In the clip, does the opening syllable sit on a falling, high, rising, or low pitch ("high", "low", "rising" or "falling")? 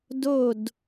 falling